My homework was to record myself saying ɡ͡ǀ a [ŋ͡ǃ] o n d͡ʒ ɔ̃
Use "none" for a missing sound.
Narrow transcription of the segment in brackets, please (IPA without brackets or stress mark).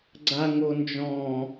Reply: ŋ